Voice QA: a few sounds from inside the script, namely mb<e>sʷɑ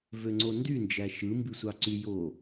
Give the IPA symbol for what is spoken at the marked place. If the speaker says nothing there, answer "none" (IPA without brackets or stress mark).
i